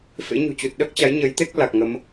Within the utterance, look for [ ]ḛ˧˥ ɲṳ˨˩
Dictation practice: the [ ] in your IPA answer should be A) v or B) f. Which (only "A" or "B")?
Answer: B